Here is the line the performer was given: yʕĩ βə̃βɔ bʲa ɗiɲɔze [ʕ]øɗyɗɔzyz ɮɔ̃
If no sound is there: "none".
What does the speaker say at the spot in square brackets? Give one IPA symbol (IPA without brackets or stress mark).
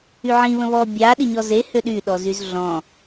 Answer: h